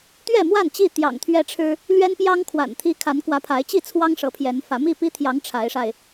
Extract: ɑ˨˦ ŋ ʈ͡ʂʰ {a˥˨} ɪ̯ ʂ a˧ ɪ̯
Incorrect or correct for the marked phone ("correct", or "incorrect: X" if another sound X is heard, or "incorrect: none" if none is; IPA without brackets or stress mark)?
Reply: incorrect: a˨˦